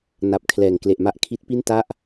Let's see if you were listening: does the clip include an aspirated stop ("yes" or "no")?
yes